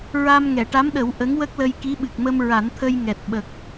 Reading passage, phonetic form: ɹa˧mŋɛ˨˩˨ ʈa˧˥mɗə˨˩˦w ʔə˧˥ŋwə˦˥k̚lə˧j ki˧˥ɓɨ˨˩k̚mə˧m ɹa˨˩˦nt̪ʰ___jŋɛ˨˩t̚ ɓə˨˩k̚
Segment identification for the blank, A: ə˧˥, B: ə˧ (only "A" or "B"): B